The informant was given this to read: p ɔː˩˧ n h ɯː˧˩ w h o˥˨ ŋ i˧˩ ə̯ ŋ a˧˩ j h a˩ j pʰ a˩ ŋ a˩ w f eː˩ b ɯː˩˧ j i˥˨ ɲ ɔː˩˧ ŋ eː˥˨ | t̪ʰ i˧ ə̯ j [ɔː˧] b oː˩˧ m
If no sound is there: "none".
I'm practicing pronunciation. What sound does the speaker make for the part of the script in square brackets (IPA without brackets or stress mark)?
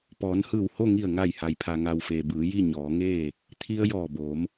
ɔː˧˩